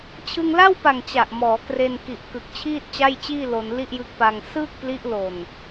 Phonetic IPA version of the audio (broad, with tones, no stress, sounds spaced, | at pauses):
t͡ɕʰ ɯ˧ ŋ l a˥˩ w p a˨˩ ŋ t͡ɕ a˨˩ ʔ m ɔː˩˦ k r e˧ n k i˨˩ ʔ k ɯ˨˩ k̚ t͡ɕʰ iː˥˩ t̚ t͡ɕ a˥˩ j t͡ɕ iː˥˩ l o˧ n l i˥˩ ʔ j ɯ˦˥ k̚ p a˧ ŋ s ɯː˥˩ k̚ p l i˦˥ ʔ l o˨˩ n